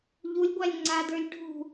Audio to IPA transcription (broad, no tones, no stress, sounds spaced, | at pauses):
ʎ u lʲ ɡʷ a lʲ ŋ͡ǀ a d ə˞ lʲ ɖʱ ṳ